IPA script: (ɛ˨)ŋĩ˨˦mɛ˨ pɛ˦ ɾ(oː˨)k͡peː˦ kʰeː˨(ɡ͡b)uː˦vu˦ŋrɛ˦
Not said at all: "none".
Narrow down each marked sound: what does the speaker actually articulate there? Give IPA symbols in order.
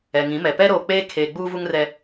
ɛ˨, oː˨, ɡ͡b

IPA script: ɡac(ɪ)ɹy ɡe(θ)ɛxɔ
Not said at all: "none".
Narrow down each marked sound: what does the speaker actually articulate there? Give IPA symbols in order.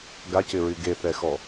ɪ, θ

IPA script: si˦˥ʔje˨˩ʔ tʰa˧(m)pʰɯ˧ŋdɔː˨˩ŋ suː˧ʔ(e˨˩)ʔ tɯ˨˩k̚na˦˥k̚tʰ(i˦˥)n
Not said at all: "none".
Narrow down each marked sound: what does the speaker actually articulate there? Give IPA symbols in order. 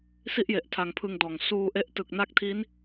ŋ, e˦˥, i˦˥

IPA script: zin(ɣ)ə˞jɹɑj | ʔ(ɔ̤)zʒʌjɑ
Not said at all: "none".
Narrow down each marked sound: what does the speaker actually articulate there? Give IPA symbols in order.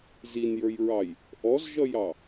j, ɔ

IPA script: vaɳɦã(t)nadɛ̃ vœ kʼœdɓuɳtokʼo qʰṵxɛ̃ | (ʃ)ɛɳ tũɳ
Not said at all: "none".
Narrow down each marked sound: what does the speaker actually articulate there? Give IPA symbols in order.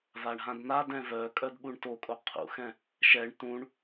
d, ʃ

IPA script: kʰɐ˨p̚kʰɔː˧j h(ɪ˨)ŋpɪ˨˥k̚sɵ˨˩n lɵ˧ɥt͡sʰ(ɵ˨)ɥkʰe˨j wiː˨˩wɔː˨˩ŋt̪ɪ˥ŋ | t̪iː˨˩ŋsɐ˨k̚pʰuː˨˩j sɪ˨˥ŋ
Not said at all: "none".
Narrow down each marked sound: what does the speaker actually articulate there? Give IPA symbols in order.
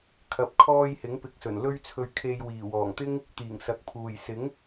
ɪ˨˥, ɵ˨

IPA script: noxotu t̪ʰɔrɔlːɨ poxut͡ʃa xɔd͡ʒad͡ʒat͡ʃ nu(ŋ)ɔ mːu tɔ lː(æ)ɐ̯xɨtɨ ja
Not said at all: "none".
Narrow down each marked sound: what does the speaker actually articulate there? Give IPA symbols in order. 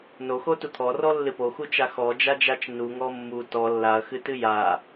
ŋ, a

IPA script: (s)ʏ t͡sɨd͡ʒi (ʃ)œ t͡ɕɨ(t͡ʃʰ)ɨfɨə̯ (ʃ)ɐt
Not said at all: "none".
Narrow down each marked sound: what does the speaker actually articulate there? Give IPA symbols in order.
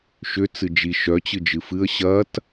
ʃ, ʃ, d͡ʒ, ɕ

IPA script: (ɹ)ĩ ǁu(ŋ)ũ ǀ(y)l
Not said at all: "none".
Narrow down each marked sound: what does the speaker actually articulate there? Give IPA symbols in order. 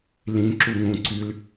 l, ŋ, y

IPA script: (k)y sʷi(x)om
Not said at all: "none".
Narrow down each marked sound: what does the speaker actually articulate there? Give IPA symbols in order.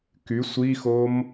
k, x

